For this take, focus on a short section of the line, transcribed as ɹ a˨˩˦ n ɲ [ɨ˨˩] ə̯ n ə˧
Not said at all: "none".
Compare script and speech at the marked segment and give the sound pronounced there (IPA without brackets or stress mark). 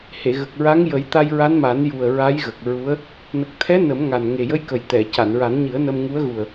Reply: ɨ˨˩˦